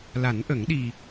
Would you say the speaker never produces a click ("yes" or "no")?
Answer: yes